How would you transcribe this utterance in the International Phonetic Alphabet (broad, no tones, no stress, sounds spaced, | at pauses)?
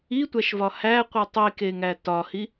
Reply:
i tʷ æ ʃ v ɒ h æ qʷ i tˤ i k e ŋ æ t ɒ h i